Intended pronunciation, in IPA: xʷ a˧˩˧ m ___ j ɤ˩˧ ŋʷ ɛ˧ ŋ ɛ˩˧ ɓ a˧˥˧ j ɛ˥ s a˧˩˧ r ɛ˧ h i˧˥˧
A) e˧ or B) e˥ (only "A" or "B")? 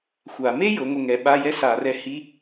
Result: B